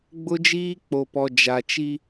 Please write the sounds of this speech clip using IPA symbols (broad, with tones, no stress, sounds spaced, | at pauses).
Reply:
ɡ͡b ʊ˦ d͡ʒ iː˦ k͡p o˨ p ɔ˨ d͡ʒ a˨ t͡ʃ i˦